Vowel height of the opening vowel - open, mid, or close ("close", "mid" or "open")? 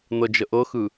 mid